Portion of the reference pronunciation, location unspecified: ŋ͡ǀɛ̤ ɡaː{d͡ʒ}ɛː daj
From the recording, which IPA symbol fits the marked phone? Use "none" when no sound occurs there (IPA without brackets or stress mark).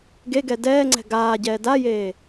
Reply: ɟ